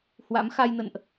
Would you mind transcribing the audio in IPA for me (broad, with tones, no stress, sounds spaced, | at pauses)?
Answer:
h w a̰˧˥ m x a˧ j n ə̰˧˨ n ʔ